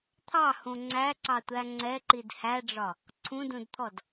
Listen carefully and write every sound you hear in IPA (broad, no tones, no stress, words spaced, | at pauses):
t̪ʰɑhũ ŋ͡ǀæǀɑtʷæ ŋ͡ǀɛǃid hæɖ͡ʐɒ | ǀʰũdũdt̪ʰɔd